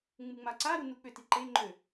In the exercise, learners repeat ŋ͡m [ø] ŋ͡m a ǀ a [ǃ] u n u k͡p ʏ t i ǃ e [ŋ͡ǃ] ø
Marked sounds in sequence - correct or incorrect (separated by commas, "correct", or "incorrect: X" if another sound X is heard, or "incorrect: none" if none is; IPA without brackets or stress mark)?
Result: incorrect: u, incorrect: ɾ, correct